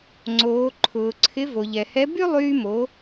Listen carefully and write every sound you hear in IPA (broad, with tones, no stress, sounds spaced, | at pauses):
ŋ͡ǀ oː˩˧ ǃʰ ʊː˩ ǀʰ ɪ˧˥ v o˩ ʎ ɛ˩ h ɛ˧˥ b y˥ lˠ yː˧ m o˩˧